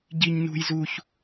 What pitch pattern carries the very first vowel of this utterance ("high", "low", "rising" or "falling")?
high